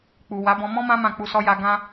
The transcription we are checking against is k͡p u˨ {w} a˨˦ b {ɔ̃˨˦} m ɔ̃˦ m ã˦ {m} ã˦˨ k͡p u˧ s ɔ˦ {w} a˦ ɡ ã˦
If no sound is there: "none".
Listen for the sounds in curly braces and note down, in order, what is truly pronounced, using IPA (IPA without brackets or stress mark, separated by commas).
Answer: w, ɔ̃˧, m, j